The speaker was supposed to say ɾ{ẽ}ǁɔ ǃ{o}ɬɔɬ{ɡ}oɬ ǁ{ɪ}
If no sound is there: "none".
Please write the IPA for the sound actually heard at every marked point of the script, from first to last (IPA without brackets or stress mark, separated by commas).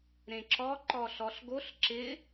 ẽ, ɔ, ɡ, ɪ